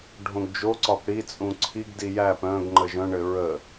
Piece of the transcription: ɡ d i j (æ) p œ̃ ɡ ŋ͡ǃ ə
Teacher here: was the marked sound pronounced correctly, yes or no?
yes